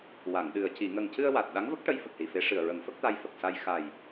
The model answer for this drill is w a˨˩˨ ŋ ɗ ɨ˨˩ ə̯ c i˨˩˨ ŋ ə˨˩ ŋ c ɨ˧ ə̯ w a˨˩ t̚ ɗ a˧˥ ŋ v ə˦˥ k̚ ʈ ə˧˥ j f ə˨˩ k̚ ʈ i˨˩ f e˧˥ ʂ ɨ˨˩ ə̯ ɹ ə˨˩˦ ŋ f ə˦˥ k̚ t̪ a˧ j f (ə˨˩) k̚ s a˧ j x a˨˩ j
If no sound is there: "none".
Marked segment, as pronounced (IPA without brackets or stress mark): ə˨˩